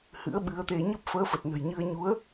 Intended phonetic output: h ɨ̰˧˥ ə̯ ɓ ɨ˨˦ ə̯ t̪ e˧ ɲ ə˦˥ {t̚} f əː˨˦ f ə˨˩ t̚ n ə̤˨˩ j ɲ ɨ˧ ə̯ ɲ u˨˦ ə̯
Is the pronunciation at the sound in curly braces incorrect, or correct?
incorrect